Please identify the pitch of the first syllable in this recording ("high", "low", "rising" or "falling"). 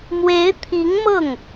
rising